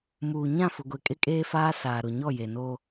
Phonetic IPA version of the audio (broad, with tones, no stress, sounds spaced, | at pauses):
m uː˨ ɲ ã˦˨ f ʊ˨ ɡʷ e˨ kʼ ɪ˦ kʼ eː˦ f aː˦ s aː˨ ɾ ʊ˨ ɲ ɔ˦˨ j e˨ n oː˦